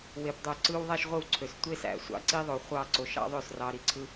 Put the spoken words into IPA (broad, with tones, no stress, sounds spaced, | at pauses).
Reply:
w e˧ p dˤ o˦˨ ǀ ɯ˦ w ðˤ æ˦ ʃ ʁʷ ɯ˦˨ w ǀʰ ø˨ s tʷ e˦ s æ̰˨ sʷ ɑ̰˦ ǀ i˦ ðˤ o˨ χʷ ɑ˦˨ ǀ o˨ ʃ ɑ̰˦ ðˤ ø˦˨ s r ɑ˧ ɾ i˨ ǀʰ ɯ˦